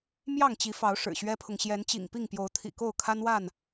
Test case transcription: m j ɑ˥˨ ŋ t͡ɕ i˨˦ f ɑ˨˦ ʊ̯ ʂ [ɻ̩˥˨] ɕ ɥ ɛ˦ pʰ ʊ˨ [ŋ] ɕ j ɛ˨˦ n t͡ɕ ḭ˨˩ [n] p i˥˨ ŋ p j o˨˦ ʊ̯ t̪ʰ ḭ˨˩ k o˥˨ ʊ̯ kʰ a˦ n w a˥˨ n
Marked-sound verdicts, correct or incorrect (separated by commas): incorrect, correct, incorrect